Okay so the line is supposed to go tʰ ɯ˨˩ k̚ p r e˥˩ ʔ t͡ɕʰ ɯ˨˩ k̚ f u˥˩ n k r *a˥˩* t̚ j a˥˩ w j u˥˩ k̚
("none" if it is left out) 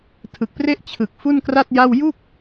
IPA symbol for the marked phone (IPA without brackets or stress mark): a˥˩